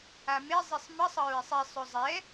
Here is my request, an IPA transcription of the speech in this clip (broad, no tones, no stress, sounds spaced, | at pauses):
a m e zˤ i sˤ m ə sˤ ə ɹ e sˤ i sˤ ʏ zˤ ɛ